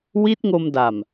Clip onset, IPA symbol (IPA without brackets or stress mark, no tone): w